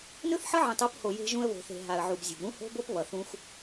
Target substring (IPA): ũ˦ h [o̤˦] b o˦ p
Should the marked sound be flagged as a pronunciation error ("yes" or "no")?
no